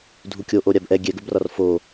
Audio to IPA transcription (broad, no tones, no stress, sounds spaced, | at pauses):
dʱ u kʲ o ʔ o ɾʲ a b ʔ ɛ ɡʲ ɛ ɡ ɵ b r ɒ r f o